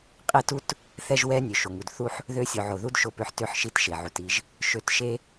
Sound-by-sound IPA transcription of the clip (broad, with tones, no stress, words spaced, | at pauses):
qʼɛ˦tu˦t | θɛ˦ʒwɛ˦ nʲø˨ʃo˨ŋu˨d θu˦ħ | ðø˦ sʲo˨ʕo˨ðu˦d ʃo˦pø˦ħ tø˦ħʃi˦tʃe˨ ʕu˨ti˦ʒ | ʃø˨˦tʃe˦